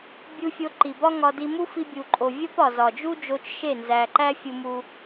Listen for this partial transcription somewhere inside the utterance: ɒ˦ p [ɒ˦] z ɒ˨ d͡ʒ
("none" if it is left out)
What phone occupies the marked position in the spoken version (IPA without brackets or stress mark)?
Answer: ɒ˨